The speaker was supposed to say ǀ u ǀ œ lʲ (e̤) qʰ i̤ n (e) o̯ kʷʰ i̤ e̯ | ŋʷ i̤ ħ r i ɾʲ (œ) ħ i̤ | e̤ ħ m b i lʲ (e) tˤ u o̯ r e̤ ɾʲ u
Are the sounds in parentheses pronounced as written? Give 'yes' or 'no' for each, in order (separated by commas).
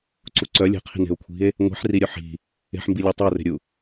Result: yes, no, yes, yes